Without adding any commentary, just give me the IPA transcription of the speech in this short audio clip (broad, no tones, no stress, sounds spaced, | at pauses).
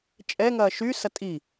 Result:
t͡ʃʼ ɛ ŋ ɐː ʃ y s ɐ tʼ i